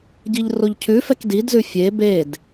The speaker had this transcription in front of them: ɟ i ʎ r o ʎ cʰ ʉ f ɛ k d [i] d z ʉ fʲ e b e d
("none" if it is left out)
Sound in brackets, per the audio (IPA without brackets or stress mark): i